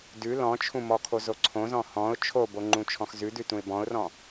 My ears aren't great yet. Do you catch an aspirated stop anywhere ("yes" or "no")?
yes